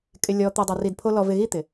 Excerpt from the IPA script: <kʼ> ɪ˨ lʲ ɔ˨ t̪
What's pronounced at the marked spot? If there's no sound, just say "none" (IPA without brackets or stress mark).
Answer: kʼ